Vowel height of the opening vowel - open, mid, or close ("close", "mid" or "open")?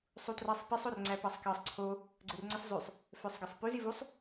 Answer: close